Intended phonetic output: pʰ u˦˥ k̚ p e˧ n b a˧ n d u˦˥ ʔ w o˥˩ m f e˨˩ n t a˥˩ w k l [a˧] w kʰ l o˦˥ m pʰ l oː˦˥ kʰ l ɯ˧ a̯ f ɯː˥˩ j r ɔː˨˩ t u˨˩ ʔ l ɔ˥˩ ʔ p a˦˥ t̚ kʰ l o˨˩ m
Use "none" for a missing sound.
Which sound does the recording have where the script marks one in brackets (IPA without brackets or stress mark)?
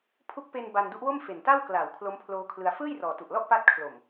a˩˦